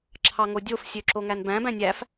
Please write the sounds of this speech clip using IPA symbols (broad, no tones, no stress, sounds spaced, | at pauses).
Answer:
ǁʰ ɑ ŋ o dʲ o f sʲ ø ǁ o ŋ æ n b æ̃ b æ̃ nʲ æ f